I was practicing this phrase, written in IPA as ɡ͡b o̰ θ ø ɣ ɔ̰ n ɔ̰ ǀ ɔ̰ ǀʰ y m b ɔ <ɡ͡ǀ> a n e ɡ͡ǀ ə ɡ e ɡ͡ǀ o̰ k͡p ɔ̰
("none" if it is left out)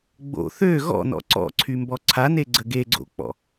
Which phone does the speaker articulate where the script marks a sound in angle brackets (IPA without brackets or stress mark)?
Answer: ǀʰ